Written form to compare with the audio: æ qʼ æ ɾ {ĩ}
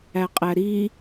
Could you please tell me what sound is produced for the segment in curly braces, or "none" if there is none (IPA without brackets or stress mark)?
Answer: i